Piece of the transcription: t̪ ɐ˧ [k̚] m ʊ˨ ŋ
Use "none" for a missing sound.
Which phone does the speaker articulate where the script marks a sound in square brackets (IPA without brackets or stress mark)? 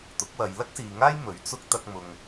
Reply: k̚